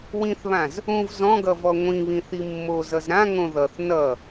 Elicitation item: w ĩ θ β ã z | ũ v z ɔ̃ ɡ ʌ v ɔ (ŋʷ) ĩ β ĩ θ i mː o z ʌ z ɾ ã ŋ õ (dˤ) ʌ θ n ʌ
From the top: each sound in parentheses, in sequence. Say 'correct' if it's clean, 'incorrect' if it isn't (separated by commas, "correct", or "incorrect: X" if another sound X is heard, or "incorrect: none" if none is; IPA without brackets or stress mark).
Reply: correct, incorrect: ð